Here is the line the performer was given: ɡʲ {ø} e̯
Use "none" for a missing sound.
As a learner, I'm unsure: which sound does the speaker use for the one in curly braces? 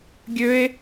ø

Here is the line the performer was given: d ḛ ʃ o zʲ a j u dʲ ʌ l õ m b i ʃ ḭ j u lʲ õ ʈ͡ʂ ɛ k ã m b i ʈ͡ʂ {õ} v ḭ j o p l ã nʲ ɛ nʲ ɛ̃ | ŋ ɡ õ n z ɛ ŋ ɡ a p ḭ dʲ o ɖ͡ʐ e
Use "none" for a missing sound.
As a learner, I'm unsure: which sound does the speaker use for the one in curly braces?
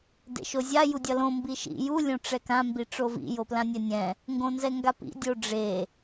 o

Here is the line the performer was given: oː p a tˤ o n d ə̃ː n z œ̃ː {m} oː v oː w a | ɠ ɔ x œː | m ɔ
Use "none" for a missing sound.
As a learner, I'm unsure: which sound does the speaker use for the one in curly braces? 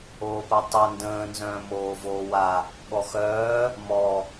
m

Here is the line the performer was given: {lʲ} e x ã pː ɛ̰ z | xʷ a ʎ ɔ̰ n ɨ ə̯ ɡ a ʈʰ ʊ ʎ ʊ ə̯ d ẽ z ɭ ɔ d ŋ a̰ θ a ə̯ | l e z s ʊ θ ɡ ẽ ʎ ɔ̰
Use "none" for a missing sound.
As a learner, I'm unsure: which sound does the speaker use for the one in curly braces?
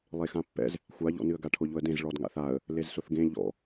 lˠ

